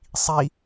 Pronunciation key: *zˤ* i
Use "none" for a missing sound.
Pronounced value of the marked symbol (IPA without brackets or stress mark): sˤ